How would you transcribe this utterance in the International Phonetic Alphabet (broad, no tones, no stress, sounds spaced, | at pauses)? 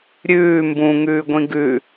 ɾʲ ʉː m b ũ ŋ ʉː ɡʷ ĩ ɡ ʉ